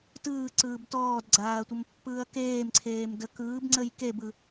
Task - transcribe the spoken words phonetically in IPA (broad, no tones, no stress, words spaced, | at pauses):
tɯːǀɯːb tɔːdɡ͡ǀaːɐ̯tʷəmpːɯːɐ̯ keːmǀʰeːmdə kɯːbŋ͡ǀəj kebɯ